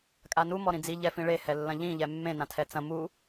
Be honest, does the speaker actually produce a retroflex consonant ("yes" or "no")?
yes